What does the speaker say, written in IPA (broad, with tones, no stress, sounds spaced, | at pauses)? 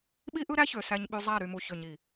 ɓ i˦ ʔ ɯ˦ ɾ æ˦ ç ø˨ s æ˦ ɲ ɓ y˦ zˤ æ˦˨ ɾ y˨ m u˨ ç ø˨ ɲ i˨